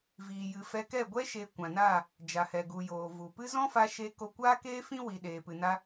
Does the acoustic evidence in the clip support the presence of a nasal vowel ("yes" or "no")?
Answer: yes